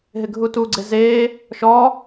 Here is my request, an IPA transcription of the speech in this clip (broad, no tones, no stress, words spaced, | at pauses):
ɦɪɡʱutu ɡ͡ǀeze | ʃɔ